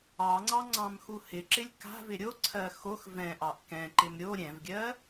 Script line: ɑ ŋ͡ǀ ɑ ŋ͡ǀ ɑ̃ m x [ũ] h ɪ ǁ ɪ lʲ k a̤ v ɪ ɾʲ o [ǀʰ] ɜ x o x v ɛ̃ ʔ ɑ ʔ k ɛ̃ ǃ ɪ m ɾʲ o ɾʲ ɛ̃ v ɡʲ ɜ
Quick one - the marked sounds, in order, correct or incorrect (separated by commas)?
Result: incorrect, correct